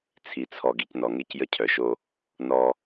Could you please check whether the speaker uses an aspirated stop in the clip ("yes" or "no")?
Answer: yes